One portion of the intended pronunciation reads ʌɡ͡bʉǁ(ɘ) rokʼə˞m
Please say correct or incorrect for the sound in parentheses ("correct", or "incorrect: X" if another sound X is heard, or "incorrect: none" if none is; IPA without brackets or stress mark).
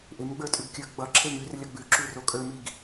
incorrect: ʉ